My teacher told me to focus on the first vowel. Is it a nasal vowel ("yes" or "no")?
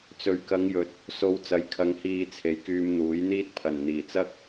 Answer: no